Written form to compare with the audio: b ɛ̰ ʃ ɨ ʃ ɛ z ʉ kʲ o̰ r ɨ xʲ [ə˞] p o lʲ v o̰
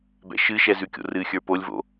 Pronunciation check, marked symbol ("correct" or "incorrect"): correct